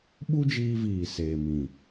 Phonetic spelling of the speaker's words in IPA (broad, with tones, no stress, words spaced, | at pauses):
ɓu˦d͡ʒiː˧viː˨ seː˨mĩ˨